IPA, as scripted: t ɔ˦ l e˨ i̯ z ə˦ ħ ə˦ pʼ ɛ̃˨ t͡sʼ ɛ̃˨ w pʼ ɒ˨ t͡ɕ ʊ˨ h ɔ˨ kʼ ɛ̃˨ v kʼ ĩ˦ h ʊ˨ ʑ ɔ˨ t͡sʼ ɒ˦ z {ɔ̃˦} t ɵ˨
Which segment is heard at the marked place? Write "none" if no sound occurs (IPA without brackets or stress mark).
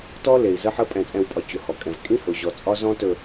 ɔ̃˦